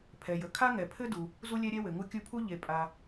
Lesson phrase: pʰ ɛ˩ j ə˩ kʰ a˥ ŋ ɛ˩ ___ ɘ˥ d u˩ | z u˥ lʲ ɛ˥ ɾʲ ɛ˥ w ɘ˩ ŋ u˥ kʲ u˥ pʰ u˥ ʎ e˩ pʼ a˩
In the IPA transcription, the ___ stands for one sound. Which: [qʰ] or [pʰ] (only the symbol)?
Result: pʰ